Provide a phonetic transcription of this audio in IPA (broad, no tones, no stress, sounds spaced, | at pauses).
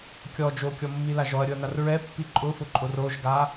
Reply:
kʲ ɔ d͡ʒ o kʲ ɔ mː i l a ʒ ɔ ɐ̯ ɾʲ ʊ ɐ̯ n̪ a r ɹ ɛ pː i ǃʼ ʊ f ʊ ǃʼ o r o ʒ ɡ a